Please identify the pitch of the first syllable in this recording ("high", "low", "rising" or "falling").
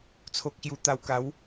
low